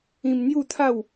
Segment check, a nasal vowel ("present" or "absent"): present